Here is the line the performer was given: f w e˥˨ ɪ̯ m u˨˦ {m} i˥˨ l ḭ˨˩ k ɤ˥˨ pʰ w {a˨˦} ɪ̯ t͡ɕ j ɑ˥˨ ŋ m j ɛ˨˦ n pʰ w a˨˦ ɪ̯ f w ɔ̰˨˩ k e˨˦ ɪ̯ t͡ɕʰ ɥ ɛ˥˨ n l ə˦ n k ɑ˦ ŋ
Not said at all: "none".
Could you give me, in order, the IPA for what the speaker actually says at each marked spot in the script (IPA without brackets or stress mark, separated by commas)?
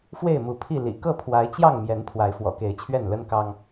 pʰ, a˨˦